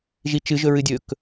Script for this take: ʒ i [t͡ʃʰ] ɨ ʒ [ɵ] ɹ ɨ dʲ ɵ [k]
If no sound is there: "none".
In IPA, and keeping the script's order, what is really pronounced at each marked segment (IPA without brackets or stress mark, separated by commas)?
t͡ʃ, ɵ, k